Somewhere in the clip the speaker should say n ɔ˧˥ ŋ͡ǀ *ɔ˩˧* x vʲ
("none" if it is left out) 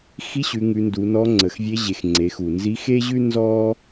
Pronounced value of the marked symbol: ə˩˧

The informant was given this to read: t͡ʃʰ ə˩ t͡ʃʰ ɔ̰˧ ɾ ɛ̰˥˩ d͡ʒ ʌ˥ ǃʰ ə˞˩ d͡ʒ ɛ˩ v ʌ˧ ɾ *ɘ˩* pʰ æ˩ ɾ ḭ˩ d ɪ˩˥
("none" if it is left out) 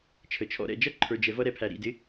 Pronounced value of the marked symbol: ɛ˩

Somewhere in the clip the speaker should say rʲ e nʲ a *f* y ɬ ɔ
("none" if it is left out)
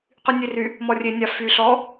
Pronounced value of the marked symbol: f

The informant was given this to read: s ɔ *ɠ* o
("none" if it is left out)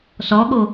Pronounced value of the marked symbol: ɠ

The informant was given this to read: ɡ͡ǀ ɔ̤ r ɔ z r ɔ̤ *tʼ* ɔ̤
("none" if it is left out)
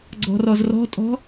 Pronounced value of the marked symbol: tʼ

